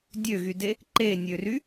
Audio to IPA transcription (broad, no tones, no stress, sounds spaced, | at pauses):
dʲ ø ɣ y d e | ǃ e nʲ ø r y